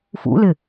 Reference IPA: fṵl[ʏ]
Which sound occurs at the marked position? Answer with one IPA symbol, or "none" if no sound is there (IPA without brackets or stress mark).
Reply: ɪ